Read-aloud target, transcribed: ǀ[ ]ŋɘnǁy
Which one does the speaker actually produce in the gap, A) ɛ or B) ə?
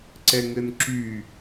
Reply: A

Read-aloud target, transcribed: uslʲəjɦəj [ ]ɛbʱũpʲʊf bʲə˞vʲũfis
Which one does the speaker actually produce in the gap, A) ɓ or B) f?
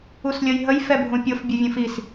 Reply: B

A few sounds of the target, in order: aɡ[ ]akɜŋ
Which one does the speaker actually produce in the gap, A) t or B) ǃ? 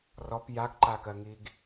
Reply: B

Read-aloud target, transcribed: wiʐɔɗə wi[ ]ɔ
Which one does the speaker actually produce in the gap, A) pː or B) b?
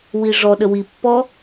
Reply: A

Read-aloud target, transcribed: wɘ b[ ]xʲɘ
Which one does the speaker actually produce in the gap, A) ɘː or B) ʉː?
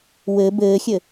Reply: A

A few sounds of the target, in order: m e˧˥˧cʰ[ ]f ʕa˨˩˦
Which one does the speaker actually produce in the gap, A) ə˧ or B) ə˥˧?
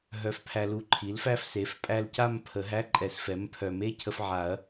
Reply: A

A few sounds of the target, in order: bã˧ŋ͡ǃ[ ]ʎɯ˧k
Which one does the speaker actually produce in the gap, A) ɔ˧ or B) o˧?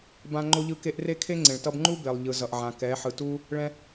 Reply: B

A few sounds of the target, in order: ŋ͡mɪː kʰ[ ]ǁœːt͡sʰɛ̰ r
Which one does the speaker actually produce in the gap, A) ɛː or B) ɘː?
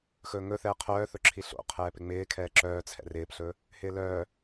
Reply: A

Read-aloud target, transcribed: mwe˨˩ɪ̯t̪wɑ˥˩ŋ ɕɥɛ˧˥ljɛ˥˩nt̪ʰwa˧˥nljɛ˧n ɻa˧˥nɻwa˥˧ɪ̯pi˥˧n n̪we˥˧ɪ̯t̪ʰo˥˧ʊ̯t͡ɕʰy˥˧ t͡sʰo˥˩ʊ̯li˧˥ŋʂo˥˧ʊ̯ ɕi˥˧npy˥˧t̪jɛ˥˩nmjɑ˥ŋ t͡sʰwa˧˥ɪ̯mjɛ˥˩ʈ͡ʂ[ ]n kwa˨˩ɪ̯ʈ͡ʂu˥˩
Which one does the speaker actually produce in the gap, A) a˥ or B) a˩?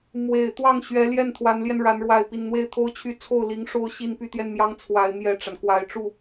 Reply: B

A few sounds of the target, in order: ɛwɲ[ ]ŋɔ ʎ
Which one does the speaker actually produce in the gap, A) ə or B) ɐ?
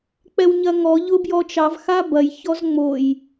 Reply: B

